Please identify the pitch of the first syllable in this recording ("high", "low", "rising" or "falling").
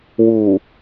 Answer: low